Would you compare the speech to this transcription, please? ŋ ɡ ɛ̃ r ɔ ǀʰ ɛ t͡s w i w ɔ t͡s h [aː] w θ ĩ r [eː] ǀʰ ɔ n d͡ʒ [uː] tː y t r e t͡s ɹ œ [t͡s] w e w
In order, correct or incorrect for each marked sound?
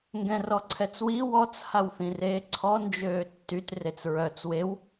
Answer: incorrect: a, correct, incorrect: øː, correct

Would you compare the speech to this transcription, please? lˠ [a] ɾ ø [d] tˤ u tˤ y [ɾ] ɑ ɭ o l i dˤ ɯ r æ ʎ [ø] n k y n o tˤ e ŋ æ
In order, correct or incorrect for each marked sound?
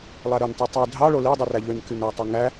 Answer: incorrect: æ, incorrect: n, incorrect: dʱ, correct

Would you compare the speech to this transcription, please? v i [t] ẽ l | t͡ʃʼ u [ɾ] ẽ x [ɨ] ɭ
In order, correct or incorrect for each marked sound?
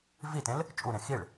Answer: correct, correct, incorrect: i

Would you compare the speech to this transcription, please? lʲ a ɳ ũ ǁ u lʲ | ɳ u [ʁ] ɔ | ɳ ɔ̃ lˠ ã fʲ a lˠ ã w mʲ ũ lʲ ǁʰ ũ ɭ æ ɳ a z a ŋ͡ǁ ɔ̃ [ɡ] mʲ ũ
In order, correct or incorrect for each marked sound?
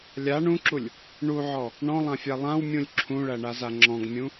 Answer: incorrect: ʕ, correct

